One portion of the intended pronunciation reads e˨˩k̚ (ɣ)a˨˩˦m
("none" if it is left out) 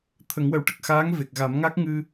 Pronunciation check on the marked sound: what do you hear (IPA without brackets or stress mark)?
ɣ